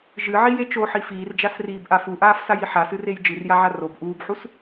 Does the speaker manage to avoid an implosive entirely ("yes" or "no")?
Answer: yes